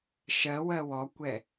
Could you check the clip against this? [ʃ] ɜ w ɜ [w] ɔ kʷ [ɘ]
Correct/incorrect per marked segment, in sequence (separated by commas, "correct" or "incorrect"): correct, correct, incorrect